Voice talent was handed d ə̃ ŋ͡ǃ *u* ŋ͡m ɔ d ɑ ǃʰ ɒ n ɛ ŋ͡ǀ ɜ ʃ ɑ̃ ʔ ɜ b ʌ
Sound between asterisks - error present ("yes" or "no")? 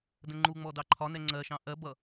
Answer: no